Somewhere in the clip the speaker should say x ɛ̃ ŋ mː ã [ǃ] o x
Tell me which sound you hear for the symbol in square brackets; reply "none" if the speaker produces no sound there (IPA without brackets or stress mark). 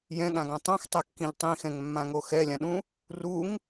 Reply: ŋ